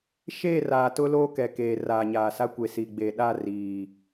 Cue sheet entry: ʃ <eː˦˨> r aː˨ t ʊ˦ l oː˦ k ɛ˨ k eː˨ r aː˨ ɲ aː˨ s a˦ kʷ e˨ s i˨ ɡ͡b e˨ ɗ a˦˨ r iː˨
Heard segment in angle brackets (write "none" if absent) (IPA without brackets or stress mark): eː˦˨